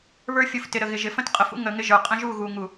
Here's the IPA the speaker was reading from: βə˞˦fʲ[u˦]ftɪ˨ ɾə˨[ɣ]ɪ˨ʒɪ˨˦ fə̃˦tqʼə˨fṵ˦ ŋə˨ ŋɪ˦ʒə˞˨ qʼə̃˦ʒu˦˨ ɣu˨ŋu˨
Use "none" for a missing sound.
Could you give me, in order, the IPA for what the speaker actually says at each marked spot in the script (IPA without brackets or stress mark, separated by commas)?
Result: u˨, ɣ